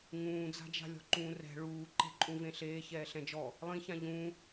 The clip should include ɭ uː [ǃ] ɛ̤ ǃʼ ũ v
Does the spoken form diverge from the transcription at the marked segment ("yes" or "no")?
no